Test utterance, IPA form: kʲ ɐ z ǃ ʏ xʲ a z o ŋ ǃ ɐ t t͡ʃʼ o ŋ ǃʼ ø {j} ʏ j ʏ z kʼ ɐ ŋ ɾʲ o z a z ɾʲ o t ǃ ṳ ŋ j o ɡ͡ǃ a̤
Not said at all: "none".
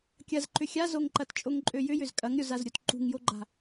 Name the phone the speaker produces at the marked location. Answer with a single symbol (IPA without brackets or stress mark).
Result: j